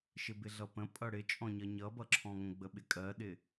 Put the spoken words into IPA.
ʃɪbɪɮʌpə̃ pʼʌɽɪt͡ʃʼɔ̃ɲʌ ɲʌbʌǁʰɔ̃ŋə̃ ɡ͡bəɓɪkʼɜɗɪ

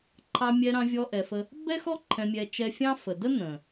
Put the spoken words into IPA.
ǃʰɑ˧mʲɛ˧ɾɑ̃˧ vʲɔ˧ʔɛ˨fə˧ | bɛ˦xɔ˦ ǃʰɛ̃˧mʲɛ˧ t͡ʃɛ˧fʲɑ̃˦ fə˨də˦ n̪ə̃˨

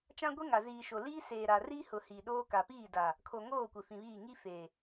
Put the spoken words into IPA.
t͡ʃã˦ɡʷe˦ŋa˨ ziː˨ʃo˨liː˦ seː˨ɾa˨riː˦hʊ˨ hiː˨ɗoː˦ka˨ piː˦˨daː˨ | kʰo˨ŋoː˦˨ kʷɪ˨fĩ˨βiː˦˨ ŋi˦feː˨

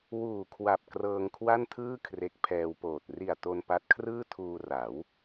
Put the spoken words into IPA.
wuː˨˩kʰwa˨˩p̚ krɤː˧ŋkʰwa˥˩ntʰɯː˥˩ kʰre˦˥k̚pʰɛː˧wpoː˨˩t̚ ri˨˩a̯ to˧npa˦˥t̚kʰrɯː˥˩tʰuː˧ ra˩˦w

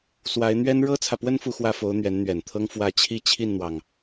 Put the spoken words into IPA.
swa˧˥ɪ̯n̪ɥɛ˥n ɻɤ˥t͡sʰä˨pwə˥n fu˥˧xwä˥˩fo˧˥ʊ̯ n̪ɥɛ˧˥nn̪ɥɛ˨˩nt̪ʰɤ˥ŋ fwä˥˧ t͡ɕʰi˥˧t͡ɕʰi˥˩nn̪wɑ˩ŋ

